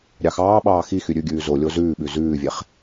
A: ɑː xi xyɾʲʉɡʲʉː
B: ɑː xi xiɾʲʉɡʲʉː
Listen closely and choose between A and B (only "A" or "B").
A